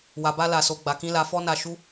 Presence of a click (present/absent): absent